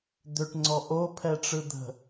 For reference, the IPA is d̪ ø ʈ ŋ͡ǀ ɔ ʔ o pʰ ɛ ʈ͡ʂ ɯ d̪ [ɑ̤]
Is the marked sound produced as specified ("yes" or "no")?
no